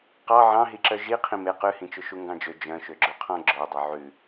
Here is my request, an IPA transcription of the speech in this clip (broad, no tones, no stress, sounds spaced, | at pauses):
q ɑ ʕ ɑ̃ ɦ i ǁ œ ʒ i qʰ ĩ m e q ʉ h ĩ t͡ʃ ɵ ʃ u ŋ ɡ ɑ̃ d͡ʒ ø d͡ʒ œ̃ ʃ ø ɡ͡ǁ ɵ qʰ ɔ̃ ɡ͡ǁ œ dˤ œ ʕ ʉ